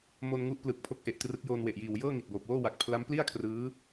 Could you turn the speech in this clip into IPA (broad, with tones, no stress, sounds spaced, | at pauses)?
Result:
m o˧ n ŋ u˦˥ ʔ p l ɯ˨˩ k̚ pʰ o˦˥ k̚ ʔ e˨˩ ʔ t r ɯ˦˥ k̚ j oː˧ n w e˨˩ ʔ j iː˨˩ w j ɤː˥˩ ŋ i˨˩ t̚ b oː˨˩ p̚ w oː˥˩ w a˨˩ k̚ pʰ l a˦˥ m p l i˥˩ a̯ kʰ r ɯː˦˥